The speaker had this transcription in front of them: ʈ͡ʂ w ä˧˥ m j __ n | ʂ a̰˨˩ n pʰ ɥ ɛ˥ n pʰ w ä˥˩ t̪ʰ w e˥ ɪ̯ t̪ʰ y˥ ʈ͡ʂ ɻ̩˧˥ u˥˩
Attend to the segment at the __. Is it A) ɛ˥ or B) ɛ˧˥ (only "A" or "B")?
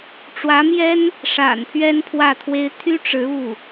A